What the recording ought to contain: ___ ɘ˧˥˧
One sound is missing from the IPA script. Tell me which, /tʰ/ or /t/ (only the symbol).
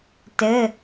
t